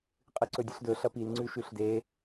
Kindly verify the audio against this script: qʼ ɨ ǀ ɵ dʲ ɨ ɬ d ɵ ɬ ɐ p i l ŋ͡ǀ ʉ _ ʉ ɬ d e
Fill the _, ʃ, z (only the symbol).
ʃ